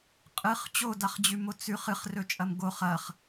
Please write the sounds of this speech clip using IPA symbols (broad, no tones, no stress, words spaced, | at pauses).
qʼɨχ t͡ɕodaχd͡ʑʉmo t͡sʉχ ɨχrɵt͡ʃʼɐm ɡoχ ɐχ